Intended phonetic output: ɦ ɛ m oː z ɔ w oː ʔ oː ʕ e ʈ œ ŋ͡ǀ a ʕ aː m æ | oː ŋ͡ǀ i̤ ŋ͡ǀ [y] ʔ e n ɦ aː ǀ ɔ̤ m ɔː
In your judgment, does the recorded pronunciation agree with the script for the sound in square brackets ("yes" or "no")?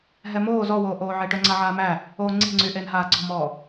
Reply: yes